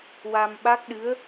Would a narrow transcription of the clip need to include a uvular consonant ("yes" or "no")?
no